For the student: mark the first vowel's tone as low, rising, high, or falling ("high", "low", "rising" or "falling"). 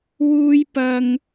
high